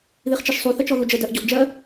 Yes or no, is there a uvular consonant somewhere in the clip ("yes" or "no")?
yes